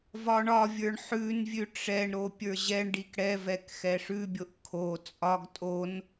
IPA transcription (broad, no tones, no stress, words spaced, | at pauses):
vɒɳɒvʲə˞ɳ ħʉnvʲʉ ʈ͡ʂɛɳɾo pʲə˞ʑɛɳɖik ɽɛvɛk xɛʂʉbʲoʔ kʰo t͡sʼɒɡ tʼon